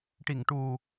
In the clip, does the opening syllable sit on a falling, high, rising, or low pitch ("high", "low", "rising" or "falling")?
low